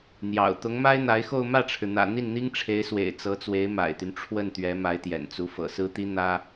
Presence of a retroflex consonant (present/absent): present